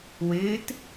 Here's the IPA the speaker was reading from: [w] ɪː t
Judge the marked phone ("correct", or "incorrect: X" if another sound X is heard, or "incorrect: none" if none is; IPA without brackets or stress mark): correct